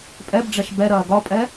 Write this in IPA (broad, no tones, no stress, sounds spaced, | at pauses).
pʼ ɛ b ɖ͡ʐ ɛ ʃ b ɛ ɾ ɐː ɡ ɒ pʼ ɛ